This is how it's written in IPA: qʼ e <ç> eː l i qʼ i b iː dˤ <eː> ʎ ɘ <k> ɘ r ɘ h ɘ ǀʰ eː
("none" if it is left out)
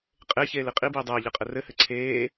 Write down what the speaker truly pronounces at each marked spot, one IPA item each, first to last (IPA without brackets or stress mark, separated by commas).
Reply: ç, ɘː, qʼ